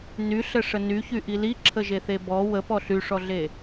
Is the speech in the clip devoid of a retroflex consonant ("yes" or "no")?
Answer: no